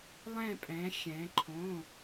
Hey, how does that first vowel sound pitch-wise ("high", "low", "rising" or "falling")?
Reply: falling